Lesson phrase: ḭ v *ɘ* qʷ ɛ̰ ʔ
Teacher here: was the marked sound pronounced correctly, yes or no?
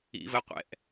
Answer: yes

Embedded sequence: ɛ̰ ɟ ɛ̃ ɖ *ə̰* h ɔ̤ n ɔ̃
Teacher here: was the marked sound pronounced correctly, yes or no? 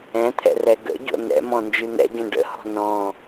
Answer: yes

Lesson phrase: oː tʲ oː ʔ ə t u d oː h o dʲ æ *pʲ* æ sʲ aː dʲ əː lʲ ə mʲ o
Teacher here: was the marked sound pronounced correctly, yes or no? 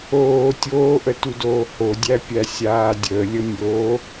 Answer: yes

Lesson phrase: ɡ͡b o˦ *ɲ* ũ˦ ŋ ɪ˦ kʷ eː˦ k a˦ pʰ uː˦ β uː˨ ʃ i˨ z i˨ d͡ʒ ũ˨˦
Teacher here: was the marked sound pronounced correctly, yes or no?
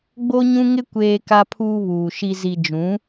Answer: yes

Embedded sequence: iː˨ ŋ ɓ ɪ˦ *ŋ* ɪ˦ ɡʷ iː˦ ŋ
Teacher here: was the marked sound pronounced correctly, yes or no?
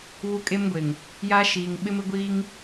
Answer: no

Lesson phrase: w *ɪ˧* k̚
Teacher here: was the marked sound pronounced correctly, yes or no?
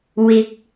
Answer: yes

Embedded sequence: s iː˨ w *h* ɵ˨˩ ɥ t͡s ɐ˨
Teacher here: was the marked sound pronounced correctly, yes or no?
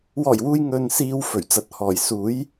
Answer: no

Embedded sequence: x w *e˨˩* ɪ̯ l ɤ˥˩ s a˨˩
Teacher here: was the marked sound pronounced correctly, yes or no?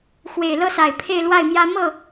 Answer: yes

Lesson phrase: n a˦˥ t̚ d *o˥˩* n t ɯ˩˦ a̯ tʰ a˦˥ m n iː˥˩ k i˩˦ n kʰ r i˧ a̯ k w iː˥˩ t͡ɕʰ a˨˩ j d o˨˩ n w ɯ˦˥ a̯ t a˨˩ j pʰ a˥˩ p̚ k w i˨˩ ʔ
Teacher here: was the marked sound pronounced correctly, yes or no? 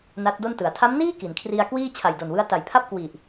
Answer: yes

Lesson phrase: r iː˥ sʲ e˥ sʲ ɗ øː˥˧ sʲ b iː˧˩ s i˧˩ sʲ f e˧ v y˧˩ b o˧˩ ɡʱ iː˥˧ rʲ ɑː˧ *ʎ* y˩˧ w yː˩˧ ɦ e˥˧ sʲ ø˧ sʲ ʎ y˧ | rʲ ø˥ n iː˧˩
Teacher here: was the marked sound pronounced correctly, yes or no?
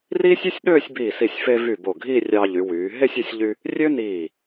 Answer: yes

